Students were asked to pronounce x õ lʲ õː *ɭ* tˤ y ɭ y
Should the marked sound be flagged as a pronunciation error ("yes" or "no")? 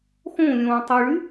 yes